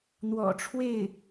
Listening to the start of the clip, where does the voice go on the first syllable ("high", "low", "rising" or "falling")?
low